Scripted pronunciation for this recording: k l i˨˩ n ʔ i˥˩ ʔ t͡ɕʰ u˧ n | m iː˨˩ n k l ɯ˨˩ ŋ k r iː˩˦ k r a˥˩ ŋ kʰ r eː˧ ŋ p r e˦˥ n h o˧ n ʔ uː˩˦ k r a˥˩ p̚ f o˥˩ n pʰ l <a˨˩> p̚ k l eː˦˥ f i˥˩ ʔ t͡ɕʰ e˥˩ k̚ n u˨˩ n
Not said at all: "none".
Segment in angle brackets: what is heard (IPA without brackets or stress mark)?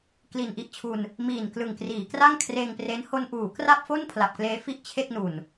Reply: a˨˩